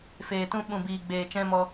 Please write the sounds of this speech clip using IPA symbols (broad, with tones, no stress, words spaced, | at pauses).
feː˨tũ˧ɓũ˨biː˨ ɡ͡beː˨t͡ʃɛ̃˧mɔ˧